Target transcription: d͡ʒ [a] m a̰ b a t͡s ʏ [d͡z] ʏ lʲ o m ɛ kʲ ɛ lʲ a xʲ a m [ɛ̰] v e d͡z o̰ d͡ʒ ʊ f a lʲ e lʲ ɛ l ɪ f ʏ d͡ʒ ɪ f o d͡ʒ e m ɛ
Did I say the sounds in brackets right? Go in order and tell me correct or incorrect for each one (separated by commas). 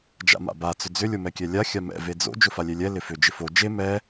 incorrect, correct, correct